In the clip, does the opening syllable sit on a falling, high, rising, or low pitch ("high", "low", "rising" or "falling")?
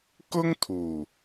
high